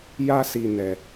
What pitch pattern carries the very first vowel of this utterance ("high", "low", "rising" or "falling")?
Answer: high